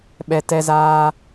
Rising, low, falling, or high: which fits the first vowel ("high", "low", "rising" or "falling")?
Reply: low